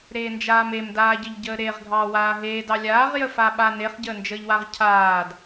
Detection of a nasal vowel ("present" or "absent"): absent